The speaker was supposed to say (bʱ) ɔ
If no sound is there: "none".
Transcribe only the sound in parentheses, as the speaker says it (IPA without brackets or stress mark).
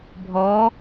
bʱ